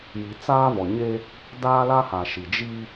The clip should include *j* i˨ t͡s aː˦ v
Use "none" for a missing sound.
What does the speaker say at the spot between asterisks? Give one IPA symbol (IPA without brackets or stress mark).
j